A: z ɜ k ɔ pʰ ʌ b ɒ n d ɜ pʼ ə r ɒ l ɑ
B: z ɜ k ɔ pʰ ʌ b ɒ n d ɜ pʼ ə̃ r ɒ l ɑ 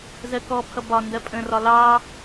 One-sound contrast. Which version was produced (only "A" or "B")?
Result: B